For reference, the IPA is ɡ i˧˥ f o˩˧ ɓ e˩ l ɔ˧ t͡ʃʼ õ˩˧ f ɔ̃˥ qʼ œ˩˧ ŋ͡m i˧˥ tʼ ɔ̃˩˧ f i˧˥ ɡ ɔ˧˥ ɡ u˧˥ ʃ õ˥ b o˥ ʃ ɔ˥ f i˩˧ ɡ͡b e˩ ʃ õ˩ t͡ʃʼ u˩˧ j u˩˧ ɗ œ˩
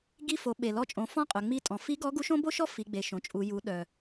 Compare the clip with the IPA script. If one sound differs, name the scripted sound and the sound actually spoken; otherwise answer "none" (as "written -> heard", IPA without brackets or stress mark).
none